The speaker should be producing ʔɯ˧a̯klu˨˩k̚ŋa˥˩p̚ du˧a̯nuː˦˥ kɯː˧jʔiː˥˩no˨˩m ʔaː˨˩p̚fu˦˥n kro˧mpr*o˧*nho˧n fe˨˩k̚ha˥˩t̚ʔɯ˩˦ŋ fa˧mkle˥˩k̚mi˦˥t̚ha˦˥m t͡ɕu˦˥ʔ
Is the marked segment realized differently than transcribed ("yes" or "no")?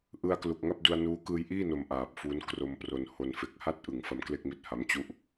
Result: no